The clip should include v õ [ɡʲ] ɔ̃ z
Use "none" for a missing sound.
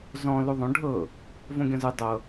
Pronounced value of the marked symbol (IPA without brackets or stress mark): ɡʲ